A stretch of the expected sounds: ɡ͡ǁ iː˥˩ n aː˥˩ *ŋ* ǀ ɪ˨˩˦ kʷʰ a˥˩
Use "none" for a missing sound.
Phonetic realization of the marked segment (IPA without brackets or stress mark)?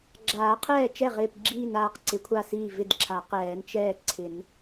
q